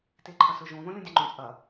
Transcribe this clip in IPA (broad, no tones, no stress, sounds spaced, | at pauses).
t e ǃʰ ɐ s ɵ ʒ õ ð õ lʲ õ dʲ ɐ ŋ͡ǃ õ t͡sʼ ɐ